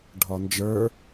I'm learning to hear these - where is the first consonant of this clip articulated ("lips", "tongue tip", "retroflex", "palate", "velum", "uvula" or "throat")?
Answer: retroflex